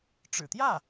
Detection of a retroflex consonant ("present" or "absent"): present